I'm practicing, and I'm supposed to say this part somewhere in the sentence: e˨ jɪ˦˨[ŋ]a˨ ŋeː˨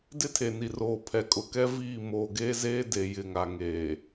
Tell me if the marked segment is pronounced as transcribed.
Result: yes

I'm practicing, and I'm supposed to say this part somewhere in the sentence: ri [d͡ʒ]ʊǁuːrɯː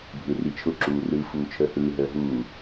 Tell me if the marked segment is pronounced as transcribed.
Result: no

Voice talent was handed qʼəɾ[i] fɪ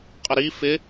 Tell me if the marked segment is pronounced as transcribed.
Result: yes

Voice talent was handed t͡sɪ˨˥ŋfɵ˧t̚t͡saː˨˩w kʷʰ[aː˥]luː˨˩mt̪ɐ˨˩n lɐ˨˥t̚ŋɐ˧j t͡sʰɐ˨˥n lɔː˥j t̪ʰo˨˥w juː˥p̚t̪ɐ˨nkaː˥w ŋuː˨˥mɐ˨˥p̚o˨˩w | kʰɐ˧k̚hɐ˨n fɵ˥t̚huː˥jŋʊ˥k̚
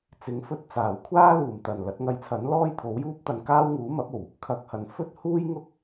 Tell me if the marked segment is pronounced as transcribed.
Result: yes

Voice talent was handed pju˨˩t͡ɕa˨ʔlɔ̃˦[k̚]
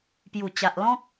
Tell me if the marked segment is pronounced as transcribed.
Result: yes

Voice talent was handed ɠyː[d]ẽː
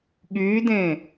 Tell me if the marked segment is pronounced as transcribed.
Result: yes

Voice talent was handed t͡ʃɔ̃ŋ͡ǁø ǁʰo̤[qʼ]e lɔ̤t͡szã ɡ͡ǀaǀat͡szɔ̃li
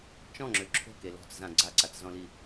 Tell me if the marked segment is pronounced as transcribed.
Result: no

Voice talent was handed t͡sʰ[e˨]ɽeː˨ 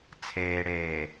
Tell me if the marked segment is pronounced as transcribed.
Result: no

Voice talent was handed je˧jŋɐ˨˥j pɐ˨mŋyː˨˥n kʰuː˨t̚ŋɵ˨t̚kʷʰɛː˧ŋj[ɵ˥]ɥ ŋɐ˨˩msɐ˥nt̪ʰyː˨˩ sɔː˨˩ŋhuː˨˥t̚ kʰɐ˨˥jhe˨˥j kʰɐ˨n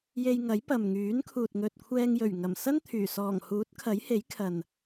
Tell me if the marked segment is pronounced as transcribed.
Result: no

